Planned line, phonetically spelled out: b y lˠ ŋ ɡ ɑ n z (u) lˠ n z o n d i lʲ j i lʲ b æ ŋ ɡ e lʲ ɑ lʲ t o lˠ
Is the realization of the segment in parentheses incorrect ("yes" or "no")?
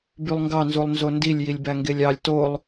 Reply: no